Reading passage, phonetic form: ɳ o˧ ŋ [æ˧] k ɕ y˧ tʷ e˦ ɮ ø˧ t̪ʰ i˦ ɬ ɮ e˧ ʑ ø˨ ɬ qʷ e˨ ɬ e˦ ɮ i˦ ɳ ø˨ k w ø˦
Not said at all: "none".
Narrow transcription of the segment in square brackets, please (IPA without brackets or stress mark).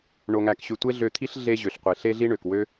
æ˧